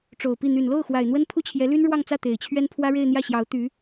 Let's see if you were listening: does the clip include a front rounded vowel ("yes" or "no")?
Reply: yes